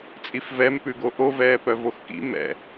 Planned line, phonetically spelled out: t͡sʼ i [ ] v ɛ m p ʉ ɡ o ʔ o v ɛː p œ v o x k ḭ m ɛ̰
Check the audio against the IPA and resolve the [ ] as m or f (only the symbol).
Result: f